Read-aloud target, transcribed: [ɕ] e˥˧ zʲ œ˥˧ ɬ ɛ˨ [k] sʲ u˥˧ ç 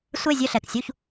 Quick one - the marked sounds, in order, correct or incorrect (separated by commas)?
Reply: incorrect, correct